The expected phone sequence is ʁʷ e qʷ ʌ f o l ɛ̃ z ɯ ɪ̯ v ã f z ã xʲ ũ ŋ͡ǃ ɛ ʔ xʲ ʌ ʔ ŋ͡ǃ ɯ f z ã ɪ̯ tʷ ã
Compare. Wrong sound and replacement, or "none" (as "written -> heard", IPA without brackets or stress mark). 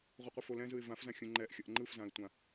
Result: none